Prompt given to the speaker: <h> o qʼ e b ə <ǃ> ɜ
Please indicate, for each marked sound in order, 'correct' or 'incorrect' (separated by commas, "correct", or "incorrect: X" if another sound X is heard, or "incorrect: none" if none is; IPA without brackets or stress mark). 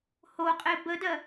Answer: correct, incorrect: d